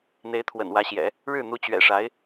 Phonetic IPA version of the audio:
n̪e˧˥ɪ̯t̪ʰwə̰˨˩nwä˧˥ɕjɛ̰˨˩˦ | ɻɻ̩˥˩ n̪u˧˥t͡ɕɥɛ̰˨˩ʂa˧˥ɪ̯

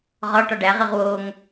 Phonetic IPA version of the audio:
ʁɒ ʈɒɖæʁiʁ woŋ

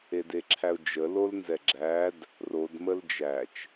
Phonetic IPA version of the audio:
edeǁʰæʊ̯d͡ʒə lolnzɛɡ͡ǁæd | rod məld͡ʒæt͡ʃ

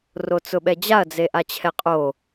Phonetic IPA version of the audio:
rot͡sʊɓɛd͡ʑaɐ̯ d͡zeʔat͡ɕʰɛqʼo

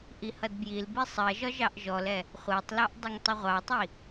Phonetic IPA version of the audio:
ʔihʌdbjilbi sˤɜʒɒ ʒɑʔʒɔlɛ | χʷɜtˤlɑʔ dˤʌŋtˤʊʁʷɑtˤi

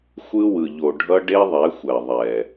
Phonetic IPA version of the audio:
xʷɯ˦wɯ˨ ʎo˨ ɖʱʌ˦ɖe˦ðˤɛ˨˦xʷɛ˨ ðˤɛ˨

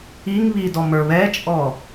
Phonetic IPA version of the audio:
iŋ βidɔm ə˞βɛt͡ʃʼɔ

